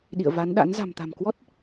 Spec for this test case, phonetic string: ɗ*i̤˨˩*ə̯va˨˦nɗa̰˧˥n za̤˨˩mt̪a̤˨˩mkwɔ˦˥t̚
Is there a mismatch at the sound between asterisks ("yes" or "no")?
yes